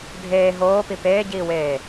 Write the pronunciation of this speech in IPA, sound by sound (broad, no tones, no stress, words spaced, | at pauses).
dʱeː ɦoːpi peːɟiːweː